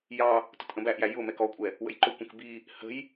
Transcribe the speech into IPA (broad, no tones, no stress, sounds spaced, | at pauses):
j ɑ | t ʊ t ʔ ə̃ b æ ʔ j æ j ʊ m ɛ k ɔ kʷʼ ɛ | w ə̰ j ǃ ʊ kʷ ə̃ k b i | h ə̤ j